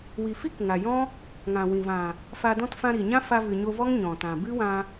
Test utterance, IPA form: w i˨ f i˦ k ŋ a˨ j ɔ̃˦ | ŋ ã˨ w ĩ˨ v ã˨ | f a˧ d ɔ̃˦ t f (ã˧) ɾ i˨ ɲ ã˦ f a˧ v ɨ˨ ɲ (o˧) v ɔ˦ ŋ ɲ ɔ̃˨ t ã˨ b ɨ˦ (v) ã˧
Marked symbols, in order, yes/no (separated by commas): yes, yes, no